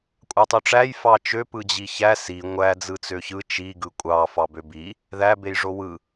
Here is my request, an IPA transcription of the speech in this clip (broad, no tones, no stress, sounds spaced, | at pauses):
kʷʼ ɑ tˤ ø ʈ͡ʂ æ j f ɑ t͡ʃ ø p ɯ d͡ʑ i ç æ s i ŋʷ æ d͡z ɯ t͡s ø ç ɯ t͡ʃ i ɡ ɯ kʷʼ ɑ f ɑ b ø b i | ð æ b e j ʐ o w ɯ